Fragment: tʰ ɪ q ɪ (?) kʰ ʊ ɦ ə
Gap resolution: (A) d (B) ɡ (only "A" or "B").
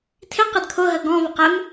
A